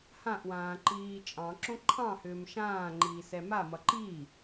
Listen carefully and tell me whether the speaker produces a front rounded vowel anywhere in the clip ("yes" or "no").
yes